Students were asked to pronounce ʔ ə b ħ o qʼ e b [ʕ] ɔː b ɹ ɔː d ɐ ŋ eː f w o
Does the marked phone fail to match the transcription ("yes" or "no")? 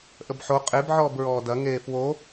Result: no